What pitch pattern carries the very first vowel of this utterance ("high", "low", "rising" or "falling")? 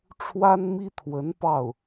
high